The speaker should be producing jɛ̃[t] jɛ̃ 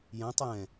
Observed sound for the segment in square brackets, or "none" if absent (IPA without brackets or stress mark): tˤ